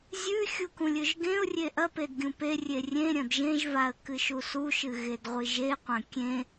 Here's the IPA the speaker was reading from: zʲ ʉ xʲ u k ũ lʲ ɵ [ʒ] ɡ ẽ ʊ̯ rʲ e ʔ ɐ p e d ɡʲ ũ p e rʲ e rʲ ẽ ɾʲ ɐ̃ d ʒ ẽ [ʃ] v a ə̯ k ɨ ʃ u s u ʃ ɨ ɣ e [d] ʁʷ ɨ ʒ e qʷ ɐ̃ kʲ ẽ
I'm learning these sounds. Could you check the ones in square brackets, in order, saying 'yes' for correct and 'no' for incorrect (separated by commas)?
yes, no, yes